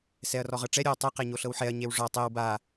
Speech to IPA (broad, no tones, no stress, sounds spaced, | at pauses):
s ɛ ɐ̯ r ɔ ʁ ɤ ʈ͡ʂ ɛ ɾʲ o w tˤ ɯ q e ɲ o ɬ ɤ w ħ ɛ ɐ̯ ɲ e w ʐ ɔ tˤ e w b a